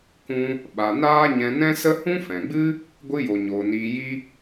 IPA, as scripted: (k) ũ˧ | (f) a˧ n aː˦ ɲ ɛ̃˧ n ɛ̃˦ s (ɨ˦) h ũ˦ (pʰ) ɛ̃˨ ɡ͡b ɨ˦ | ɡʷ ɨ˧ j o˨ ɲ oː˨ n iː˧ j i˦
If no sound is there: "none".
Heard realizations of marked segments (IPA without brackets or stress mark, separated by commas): k, ɓ, ə˦, f